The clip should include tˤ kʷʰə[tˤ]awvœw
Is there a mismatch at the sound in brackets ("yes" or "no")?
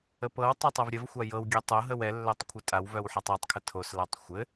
yes